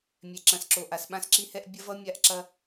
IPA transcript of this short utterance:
mʲ ɛ˨ ǁ ɐ̃˨ s ǁ o˨ ʔ a˨ s ɓ ã˦ s ǁ i˦ h ɛ˦ ʔ bʲ ɐ˦ v ʌ˦ mʲ a˦ ʔ ǁ ɐ˦

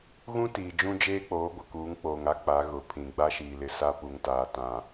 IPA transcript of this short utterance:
ɣ ũ˦ t iː˨ d͡ʒ ũ˦ d͡ʒ eː˦ k͡p oː˨˦ ɡʷ ɪ˨ k uː˨˦ ŋ k͡p oː˨ ŋ a˦ k͡p a˨˦ ɣ ʊ˨ pʰ ĩ˨ ɡ͡b a˦ ʃ iː˨ l ɪ˨ s a˦ p u˨ ŋ t aː˨ t ã˨

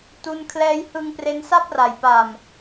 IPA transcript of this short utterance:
t u˧ n kʰ l ɛː˧ j h ɯ˧ ŋ p r e˦˥ n s a˥˩ p̚ r a˩˦ j p a˨˩ m

